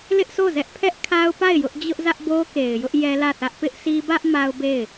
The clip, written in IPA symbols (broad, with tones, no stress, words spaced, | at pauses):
lɪ˦ʔso˦˨ zɛ˦ʔpʰɛ˦ʔ kʰa˦ʊ̯pa˦˨ɪ̯ jʊ˦ʔ d͡ʑʊ˦ʔzä˦ʔ bo˦ke˨ɪ̯jʊ˦ʔ jɛ˦lä˦˨θä˦ʔ pɪ˦ʔsi˦ bä˦ʔ ma˦ʊ̯be˦˨ɪ̯